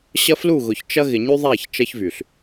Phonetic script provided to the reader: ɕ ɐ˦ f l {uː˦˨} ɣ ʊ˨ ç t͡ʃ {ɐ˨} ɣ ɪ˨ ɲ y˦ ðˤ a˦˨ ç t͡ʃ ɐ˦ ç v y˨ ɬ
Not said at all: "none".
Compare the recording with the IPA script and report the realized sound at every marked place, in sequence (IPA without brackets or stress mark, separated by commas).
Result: u˦˨, ɐ˦